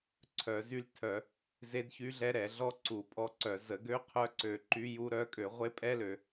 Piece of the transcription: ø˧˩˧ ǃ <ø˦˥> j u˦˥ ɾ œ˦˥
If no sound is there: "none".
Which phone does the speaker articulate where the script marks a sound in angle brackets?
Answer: y˦˥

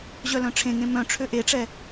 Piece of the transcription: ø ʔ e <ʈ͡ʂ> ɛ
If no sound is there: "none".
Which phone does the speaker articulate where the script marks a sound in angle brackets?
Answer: ʈ͡ʂ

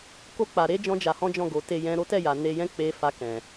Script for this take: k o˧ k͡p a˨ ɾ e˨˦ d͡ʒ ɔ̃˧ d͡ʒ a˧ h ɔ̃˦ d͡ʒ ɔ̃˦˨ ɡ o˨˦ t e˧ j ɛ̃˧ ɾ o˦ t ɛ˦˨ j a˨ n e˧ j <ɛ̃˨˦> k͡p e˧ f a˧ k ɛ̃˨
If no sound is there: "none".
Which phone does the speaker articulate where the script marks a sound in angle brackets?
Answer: ɛ̃˦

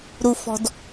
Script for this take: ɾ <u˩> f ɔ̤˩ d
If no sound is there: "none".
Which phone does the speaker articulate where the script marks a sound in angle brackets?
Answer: u˩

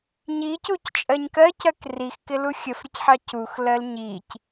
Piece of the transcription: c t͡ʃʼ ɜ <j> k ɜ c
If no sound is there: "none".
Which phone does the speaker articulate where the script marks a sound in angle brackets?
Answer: ɲ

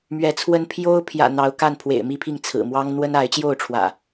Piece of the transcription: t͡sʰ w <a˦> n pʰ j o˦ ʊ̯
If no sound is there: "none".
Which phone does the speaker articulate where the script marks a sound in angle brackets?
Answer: ə˦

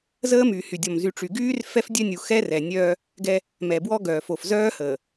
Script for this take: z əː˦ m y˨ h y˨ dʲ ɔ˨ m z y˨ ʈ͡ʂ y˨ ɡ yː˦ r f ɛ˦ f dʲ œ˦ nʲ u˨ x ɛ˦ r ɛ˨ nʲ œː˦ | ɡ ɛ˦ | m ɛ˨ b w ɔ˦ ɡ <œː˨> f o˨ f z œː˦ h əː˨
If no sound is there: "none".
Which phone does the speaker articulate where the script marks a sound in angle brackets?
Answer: œː˨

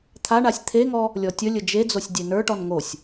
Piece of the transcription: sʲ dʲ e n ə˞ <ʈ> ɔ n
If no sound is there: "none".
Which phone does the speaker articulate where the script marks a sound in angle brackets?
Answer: ʈ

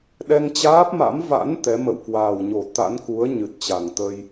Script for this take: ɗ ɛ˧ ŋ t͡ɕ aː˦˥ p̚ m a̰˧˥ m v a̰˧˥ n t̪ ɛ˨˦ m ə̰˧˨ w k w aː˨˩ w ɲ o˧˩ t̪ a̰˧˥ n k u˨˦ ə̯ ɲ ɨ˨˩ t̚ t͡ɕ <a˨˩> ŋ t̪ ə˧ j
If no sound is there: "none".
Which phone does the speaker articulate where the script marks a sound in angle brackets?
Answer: a˨˩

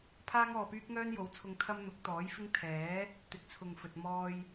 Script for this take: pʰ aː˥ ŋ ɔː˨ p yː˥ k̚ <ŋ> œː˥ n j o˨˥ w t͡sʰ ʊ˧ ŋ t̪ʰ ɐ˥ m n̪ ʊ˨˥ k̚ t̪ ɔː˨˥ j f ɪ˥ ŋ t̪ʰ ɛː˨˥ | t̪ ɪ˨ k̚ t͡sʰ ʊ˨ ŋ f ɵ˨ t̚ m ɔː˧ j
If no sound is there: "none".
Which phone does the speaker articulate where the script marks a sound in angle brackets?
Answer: ŋ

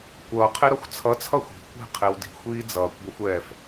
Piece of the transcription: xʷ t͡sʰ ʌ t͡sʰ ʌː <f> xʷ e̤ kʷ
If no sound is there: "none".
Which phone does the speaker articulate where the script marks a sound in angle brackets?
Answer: none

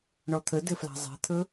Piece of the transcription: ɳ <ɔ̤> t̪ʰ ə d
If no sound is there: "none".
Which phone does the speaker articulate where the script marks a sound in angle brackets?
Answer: ɔ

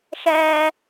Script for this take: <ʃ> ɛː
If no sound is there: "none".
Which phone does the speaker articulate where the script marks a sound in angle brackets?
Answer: ʃ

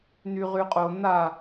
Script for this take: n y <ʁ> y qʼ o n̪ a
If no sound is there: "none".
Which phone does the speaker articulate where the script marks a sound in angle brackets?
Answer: ʁ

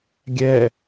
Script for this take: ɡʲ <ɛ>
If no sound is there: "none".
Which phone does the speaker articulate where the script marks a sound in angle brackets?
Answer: ɛ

